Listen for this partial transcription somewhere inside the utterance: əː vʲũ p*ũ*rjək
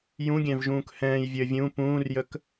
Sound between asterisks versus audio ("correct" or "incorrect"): incorrect